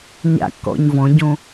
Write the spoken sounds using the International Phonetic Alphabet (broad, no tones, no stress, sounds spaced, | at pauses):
ɲ a̰ kː ɔ̰ ɲ v ɔ̃ ɟ õ